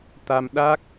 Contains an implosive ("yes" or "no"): yes